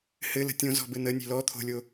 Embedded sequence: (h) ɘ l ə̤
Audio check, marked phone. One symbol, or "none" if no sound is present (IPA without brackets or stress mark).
h